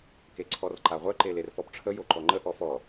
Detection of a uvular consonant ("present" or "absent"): present